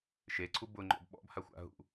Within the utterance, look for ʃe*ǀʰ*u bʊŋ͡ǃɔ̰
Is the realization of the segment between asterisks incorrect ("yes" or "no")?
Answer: no